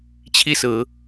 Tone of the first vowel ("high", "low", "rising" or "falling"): high